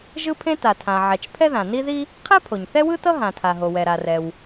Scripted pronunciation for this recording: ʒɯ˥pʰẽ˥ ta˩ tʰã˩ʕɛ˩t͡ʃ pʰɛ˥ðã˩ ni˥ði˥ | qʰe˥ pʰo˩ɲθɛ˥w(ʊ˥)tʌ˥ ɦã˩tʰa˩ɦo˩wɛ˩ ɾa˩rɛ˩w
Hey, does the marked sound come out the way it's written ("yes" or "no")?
no